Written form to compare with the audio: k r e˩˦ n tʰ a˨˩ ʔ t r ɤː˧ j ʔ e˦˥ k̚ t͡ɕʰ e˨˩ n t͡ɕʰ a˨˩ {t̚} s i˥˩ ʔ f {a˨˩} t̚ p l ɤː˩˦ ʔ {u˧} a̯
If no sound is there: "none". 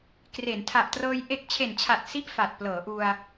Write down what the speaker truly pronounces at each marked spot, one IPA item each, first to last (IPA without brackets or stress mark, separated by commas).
t̚, a˨˩, u˧